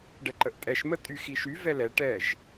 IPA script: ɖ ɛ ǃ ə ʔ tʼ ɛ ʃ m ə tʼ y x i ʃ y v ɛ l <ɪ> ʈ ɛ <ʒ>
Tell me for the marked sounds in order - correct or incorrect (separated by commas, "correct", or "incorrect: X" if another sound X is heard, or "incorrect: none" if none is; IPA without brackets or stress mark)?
incorrect: ɛ, correct